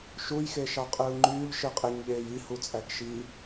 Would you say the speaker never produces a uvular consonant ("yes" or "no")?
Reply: no